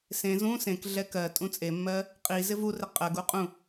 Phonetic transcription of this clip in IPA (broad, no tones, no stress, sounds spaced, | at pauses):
s ẽ z ũ s ẽ k ɮ ɛ k ɜ tʼ ũ t͡sʼ e mː ɜ | qʼ i z ɪ v u r ɪ qʼ ɜ ɡ u qʼ ũ